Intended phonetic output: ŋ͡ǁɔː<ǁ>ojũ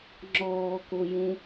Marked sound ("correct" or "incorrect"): incorrect